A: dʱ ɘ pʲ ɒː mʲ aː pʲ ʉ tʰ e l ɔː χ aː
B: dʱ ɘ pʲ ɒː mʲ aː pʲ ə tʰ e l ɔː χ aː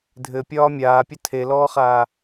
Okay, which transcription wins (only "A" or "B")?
B